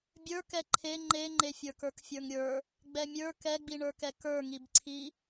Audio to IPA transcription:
bʲ ə˞ k ɛ ǃʰ e ŋ͡ǃ e ŋ͡ǃ e fʲ ə˞ k ə˞ k fʲ ə˞ ŋ ɾʲ ə˞ | ɡ͡b ɛ mʲ ə˞ k ɛ ɡ͡b i ɳ ə˞ k ɛ k ə˞ ŋ i b ǀʰ i

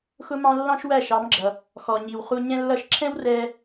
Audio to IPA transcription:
x ʊ˥ m ɑ̃˥ lː ɑ̃˥ ʃ w æ˥˩ ʃ ɑ˩˥ m ɡ͡ǁ ʌ˩ | x ɔ˩ ɲ i˩ w χ u˧ ɲ ɛ̃˥ lː ʌ˥˩ ʃ ǁʰ ɛ̃˥ w r ɛ˧

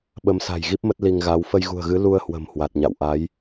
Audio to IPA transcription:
ɓ ə˨˦ m s a̤˨˩ j ɣ i˦˥ p̚ m ə˦˥ t̚ l i˧ ŋ ɣ a˨˦ w f ə˧ j ɣ ṳ˨˩ ə̯ ɣ ɨ˨˦ l u˧ ə̯ h w ə̤˨˩ m h w a˨˩ t̚ ɲ a̰˧˨ w ʔ a˨˦ j

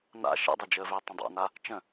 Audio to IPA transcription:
n a̰ ʃ ɛ̰ dˤ ʏ d͡ʒ əː v ʏː tˤ ə̃ dˤ a̰ n a | t͡ʃ ə̃

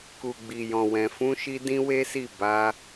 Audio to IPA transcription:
k u˨ ɡ͡b i˨ j ɔ̃˨ w ɛ̃˨ f ũ˧ ʃ i˧ d ĩ˦ w e˦ s i˦˨ b a˧

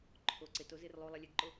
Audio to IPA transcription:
ǃʰ o ǀ ɪ t o z ɪ r lˠ u lˠ ɛ lʲ e ɡ ǃ o

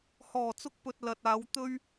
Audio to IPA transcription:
h ɔː˨˩ t͡s ʊ˧ k̚ p ɵ˨ t̚ l ɐ˨ t̚ aː˨˧ w t̪ ɵ˥ ɥ

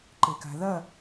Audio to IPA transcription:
ǃ e k a̤ ð ɐ

